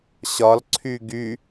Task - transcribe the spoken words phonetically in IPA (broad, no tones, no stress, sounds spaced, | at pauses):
ɕ ɒ l ǀʰ y ɡ y